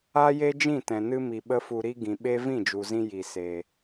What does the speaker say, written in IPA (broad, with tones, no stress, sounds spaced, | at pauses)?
a˦ j e˦ d͡ʒ ĩ˦˨ t ɛ̃˨ n ɨ˧ m i˨ ɓ ə˦ f u˧ ɾ i˦ ɡ ĩ˨ ɓ e˦ v ĩ˦˨ d͡ʒ u˨ z ĩ˧ j i˨ s e˨